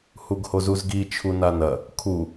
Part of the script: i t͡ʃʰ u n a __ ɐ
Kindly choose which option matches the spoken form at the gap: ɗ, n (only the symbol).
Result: n